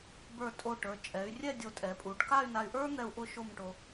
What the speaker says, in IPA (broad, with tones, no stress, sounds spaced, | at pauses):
b ə˞˧˩ tʼ o˧˩ ʈ ə˞˩˧ t͡ʃʼ ɛ˩˧ y̯ rʲ ɛ˥˧ dʲ o˧˩ tʼ ɛ˩˧ pʼ u˩˧ ɖ k a˥˧ y̯ n a˧ y̯ ʔ ə˞˥ n̪ ɛ˧ u̯ ʔ ʊ˥˧ ʃ o˥˧ m ʈ o˧